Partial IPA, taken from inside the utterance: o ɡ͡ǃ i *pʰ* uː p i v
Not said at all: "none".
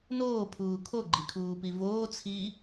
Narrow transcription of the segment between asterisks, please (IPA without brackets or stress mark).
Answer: kʰ